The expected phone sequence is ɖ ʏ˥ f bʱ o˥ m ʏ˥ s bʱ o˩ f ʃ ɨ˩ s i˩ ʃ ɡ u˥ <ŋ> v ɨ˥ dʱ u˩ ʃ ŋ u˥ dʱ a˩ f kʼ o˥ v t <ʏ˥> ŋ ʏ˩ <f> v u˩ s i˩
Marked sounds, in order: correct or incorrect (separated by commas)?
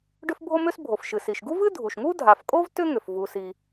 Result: incorrect, correct, correct